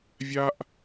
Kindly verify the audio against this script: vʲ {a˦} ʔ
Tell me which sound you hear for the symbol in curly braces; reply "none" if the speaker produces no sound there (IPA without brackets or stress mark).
a˦